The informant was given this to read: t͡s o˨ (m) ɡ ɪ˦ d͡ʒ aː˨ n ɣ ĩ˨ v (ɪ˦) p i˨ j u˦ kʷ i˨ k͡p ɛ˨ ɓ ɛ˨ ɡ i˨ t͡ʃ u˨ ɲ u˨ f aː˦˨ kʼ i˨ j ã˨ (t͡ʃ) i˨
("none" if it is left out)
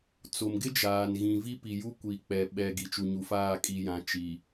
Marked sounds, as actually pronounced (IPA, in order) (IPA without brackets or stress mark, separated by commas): m, i˦, t͡ʃ